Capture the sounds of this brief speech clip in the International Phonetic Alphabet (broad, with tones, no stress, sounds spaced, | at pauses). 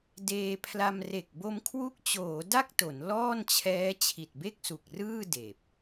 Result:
d eː˧ pʰ l a˧ m r e˨˩ k̚ b o˧ m kʰ w u˦˥ k̚ t͡ɕ oː˩˦ d a˥˩ k̚ t o˩˦ n l ɔː˥˩ n t͡ɕʰ ɛː˦˥ t͡ɕʰ i˨˩ t̚ b e˥˩ k̚ s u˨˩ k̚ r ɯː˥˩ d eː˨˩ p̚